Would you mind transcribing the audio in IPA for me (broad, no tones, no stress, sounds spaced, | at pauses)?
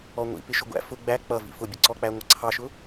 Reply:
ɔ ŋʷ ḭ p ɪ ʃ ʊ ɡʷ æ̰ f ʊ ɡ͡b æ k͡p ʌ v ḭ f ʊ bʲ ə ǀ ɔ k͡p æ ŋʷ ʌ ǀʰ ɑ ʃ ʊ